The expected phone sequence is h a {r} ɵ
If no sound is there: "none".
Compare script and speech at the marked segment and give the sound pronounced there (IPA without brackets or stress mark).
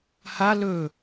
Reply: l